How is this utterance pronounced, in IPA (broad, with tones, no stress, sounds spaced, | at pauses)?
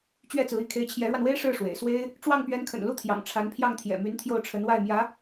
t͡ɕ ɥ ɛ˥˩ t͡s ɹ̩˧˥ i˥˩ kʰ e˧˥ ɪ̯ t͡ɕʰ j ɛ˧˥ ɻ w a˧ n w e˥ ɪ̯ ʂ ɻ̩˥˩ ʂ w ḛ˨˩ ɪ̯ s w e˥ ɪ̯ | ʈ͡ʂ w ɑ˥˩ ŋ p ɥ ɛ˧˥ n kʰ ə̰˨˩ n l u˥˩ t̪ʰ j ɑ̰˨˩ ŋ ʈ͡ʂʰ a˧˥ n pʰ j ɑ˥˩ ŋ t̪ʰ j ɛ̰˨˩ m y˧˥ n t̪ʰ j o˥˩ ʊ̯ ʈ͡ʂʰ ə˧˥ n w a˥˩ ɪ̯ m j ä˧˥